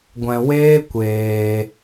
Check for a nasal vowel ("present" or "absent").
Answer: present